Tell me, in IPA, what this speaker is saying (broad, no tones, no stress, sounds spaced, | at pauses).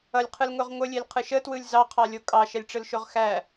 ʌ lʲ qʰ ɯ l ŋ o ʁ ŋʷ ə lʲ e l qʰ ɯ ʃ ə t w ɯ lʲ z ɑ qʰ ɑ lʲ o kʼ ɑ ʃ ɛ lʲ ʈ͡ʂ ɯ l ʃ o ʁ x æ